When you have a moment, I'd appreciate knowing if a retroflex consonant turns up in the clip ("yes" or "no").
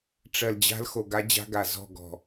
yes